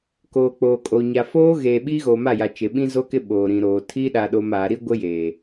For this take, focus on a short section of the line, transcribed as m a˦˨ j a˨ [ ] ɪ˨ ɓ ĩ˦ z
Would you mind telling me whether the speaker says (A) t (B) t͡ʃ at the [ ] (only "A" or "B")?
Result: B